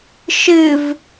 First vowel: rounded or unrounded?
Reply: unrounded